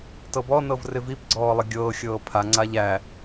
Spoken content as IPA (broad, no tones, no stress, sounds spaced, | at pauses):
t ɤ b ɔ n ɤ v r ɪ v i p ɡ͡ǀ ɔː lˠ ɪ ɡʲ ɤː xʲ ɤː pʰ a ŋ͡ǀ a ʎ æ